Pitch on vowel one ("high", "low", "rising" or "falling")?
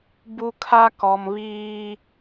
high